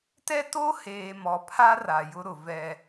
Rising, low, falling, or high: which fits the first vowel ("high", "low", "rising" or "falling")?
high